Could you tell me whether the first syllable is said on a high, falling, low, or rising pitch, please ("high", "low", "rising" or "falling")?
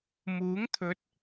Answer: rising